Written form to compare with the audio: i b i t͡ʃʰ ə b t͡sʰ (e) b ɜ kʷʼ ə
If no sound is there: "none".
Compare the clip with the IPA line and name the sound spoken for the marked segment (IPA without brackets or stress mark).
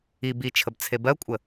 e